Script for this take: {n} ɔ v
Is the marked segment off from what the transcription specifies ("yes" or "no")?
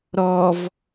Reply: yes